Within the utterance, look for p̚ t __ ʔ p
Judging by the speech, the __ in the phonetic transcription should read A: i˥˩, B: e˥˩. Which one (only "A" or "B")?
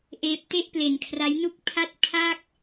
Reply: B